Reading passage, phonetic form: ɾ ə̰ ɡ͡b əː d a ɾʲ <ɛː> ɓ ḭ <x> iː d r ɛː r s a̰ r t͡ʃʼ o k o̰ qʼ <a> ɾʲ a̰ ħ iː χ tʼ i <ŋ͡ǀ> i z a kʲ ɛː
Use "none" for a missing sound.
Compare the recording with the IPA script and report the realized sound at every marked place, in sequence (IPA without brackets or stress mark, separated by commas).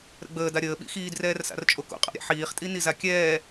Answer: əː, x, a̰, n